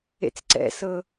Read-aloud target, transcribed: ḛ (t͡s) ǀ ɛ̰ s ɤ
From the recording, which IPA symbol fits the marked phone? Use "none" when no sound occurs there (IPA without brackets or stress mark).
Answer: t͡s